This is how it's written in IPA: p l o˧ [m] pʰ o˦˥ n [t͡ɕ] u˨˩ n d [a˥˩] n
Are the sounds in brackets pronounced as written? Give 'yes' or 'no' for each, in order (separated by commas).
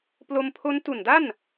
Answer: yes, no, yes